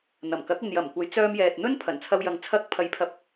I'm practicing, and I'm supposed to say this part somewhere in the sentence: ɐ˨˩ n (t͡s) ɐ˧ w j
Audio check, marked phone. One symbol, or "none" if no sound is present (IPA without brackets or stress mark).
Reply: t͡sʰ